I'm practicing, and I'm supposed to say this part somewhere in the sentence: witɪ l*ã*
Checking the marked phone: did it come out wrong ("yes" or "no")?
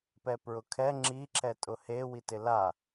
yes